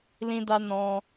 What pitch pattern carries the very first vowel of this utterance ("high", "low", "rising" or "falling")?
high